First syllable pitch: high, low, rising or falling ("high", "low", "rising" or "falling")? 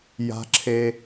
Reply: high